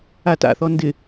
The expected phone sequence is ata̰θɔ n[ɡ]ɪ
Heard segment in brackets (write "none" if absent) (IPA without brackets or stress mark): d